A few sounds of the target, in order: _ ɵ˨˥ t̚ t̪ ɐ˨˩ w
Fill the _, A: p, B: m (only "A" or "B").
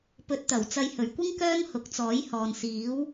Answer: A